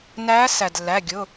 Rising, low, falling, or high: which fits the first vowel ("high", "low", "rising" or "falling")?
rising